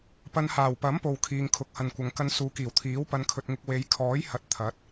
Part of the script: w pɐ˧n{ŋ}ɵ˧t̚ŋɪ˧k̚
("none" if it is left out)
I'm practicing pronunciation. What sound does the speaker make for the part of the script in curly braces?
kʰ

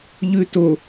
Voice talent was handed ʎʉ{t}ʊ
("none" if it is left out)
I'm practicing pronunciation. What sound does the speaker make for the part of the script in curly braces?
t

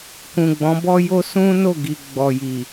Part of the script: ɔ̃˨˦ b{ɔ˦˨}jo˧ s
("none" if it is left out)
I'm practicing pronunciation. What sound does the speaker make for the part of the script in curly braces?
ɔ˧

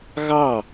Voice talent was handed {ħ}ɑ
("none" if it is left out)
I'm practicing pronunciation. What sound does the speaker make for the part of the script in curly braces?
ɣ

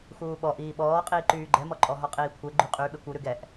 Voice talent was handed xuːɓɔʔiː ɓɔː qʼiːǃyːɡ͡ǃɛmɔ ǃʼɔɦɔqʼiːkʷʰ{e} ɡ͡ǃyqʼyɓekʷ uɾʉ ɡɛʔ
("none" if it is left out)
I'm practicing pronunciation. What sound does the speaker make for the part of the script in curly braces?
e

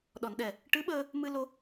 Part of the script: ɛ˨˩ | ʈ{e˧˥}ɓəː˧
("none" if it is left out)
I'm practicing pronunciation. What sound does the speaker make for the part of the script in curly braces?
ɨ˧˥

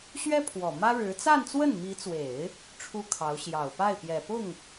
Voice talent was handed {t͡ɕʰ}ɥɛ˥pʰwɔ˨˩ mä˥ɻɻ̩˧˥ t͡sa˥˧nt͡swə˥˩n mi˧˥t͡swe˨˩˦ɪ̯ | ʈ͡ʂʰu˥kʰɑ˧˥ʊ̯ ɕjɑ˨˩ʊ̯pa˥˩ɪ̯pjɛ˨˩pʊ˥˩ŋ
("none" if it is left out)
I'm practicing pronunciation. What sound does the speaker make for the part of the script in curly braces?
ɕ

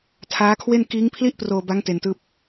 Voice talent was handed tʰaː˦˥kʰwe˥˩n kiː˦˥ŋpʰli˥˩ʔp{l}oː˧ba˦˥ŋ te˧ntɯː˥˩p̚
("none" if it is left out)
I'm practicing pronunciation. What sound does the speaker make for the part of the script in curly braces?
r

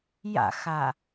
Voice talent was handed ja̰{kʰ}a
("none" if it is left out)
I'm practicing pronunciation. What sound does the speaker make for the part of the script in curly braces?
x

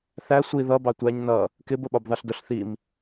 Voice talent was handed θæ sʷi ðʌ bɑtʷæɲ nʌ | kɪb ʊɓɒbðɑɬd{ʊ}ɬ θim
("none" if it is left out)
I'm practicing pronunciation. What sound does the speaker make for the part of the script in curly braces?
ʊ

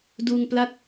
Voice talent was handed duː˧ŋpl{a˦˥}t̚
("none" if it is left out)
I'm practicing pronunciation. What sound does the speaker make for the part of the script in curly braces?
a˦˥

